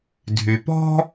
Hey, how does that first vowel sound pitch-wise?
low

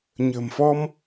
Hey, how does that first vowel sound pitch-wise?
low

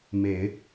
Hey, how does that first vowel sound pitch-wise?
low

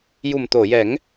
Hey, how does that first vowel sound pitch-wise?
low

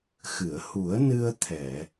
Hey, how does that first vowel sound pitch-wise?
low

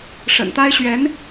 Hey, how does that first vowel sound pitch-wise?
low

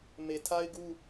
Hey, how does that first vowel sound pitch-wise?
low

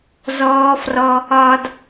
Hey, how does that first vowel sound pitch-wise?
high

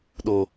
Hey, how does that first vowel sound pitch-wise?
high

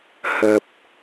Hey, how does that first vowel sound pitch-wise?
low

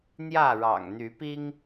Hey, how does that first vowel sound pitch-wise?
falling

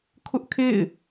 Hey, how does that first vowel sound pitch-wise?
high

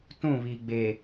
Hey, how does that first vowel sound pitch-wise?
falling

